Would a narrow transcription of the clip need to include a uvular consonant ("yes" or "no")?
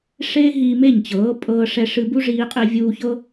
yes